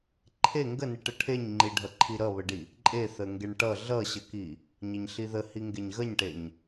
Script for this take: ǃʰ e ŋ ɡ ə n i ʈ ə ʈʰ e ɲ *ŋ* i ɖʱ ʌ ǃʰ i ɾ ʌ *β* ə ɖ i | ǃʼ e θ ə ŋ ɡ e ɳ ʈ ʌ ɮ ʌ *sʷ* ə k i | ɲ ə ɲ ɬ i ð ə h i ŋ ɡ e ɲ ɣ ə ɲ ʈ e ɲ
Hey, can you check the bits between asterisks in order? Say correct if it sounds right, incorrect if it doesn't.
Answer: incorrect: ŋ͡ǃ, correct, incorrect: ɕ

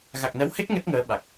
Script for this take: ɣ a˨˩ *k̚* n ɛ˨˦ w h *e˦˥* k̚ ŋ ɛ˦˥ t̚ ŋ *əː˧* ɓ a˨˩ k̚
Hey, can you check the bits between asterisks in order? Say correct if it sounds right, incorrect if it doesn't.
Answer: correct, correct, incorrect: əː˨˦

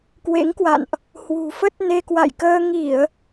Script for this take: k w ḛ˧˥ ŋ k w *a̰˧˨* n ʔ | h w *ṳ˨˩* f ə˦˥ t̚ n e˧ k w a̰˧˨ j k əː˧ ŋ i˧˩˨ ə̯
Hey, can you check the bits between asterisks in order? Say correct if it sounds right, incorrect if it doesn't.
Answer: correct, correct

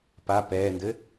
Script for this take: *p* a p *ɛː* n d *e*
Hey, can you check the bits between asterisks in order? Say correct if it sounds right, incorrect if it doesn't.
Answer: correct, correct, incorrect: ɘ

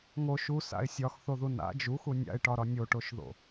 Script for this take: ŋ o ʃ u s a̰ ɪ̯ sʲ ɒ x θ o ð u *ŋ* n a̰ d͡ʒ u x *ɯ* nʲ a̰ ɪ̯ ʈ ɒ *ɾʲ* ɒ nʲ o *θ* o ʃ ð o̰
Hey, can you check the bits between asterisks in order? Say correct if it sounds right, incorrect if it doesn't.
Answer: incorrect: none, incorrect: u, incorrect: ɾ, incorrect: ʈ

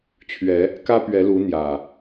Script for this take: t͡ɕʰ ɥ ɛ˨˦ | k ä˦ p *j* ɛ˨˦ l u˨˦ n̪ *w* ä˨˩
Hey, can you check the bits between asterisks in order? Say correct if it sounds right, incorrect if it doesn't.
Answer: incorrect: ɥ, incorrect: j

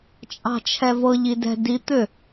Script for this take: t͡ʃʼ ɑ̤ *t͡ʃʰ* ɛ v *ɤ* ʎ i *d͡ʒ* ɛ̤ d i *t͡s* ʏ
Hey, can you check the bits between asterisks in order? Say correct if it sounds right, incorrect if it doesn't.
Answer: correct, correct, incorrect: d, incorrect: t̪

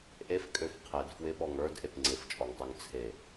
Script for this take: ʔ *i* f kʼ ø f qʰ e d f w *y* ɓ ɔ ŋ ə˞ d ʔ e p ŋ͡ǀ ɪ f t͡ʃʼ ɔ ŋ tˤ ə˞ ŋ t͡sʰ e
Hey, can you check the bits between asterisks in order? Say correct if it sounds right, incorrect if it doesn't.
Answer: incorrect: e, incorrect: ɪ

